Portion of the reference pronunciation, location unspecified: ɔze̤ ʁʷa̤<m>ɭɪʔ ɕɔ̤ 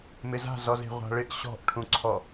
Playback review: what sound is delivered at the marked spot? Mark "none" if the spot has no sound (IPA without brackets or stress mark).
none